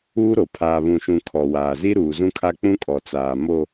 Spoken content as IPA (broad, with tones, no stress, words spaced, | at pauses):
uː˦ɾo˨ pʰaː˨βũ˨ʃũ˨ kʰɔ˨waː˨ zi˦ɾuː˨zũ˦kʰa˦ k͡pũ˦kʼɔ˨t͡saː˨ mo˨